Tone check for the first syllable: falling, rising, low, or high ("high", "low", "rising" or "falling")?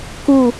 falling